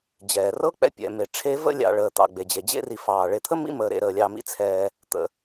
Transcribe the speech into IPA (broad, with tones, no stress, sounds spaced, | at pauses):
d͡ʑ ɛː˩ r ɤ˥ k͡p ɛ̰˦ pʲ ɛ̰˨ m e˨ ʈ͡ʂʰ e˦ v ə̰˥ lʲ ɑ̰˨ ɭ əː˩ t̪ ɑ̰˩ ɡ͡b e˩ d͡ʑ e˩ d͡ʑ ḛ˦ r i˨ f ɑː˩ ɭ e˨ t̪ʰ ə˥ m ḭ˥ m əː˨ ɾ ḛ˨ ɾ əː˨ lʲ ɑ˨ m ḭ˦ t͡sʰ ɛː˩ | t̪ ə̰˩